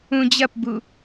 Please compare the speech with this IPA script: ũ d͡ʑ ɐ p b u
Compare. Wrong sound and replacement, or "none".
none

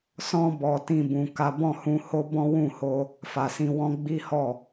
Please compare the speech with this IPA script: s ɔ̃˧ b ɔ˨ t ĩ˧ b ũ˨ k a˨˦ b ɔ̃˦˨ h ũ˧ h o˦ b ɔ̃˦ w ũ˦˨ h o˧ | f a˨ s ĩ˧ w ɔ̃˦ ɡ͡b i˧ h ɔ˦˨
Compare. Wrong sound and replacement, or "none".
i˧ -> i˦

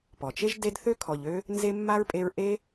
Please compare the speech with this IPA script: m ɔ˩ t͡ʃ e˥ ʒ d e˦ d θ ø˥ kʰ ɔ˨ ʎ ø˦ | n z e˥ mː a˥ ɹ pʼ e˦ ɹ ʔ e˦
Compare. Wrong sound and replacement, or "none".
m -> p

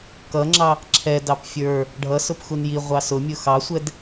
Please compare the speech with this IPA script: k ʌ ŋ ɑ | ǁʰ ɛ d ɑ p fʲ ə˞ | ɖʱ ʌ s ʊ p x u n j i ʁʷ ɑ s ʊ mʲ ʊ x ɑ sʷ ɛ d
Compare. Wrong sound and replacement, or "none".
ŋ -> ŋ͡ǁ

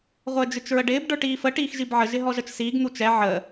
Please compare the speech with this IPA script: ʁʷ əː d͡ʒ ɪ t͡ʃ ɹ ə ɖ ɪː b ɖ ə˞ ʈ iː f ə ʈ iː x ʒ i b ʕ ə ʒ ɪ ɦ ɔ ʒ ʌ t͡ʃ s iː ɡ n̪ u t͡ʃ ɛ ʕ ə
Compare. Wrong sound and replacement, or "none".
none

